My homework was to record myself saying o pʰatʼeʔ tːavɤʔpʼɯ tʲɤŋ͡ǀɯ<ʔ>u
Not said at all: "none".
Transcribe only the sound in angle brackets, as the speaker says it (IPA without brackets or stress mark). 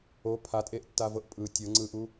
ʔ